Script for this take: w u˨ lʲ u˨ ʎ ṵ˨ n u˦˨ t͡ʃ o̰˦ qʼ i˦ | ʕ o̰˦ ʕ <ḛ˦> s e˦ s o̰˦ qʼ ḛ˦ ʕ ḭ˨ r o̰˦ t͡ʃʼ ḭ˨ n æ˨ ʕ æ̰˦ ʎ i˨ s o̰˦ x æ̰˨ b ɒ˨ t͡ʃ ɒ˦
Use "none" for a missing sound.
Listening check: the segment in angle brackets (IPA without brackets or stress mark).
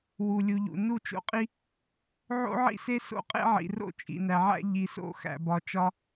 ḭ˦